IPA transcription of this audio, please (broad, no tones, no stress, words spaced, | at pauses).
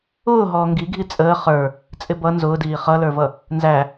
ʊːɦɔː ŋɡiɡʱi t͡sʼəː χə˞ | t͡sʼɪbʌ nzʊːdiː χʌlə˞vʌ | nzæ